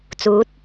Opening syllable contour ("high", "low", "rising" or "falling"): rising